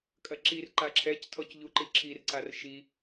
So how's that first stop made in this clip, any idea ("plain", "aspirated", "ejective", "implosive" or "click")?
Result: ejective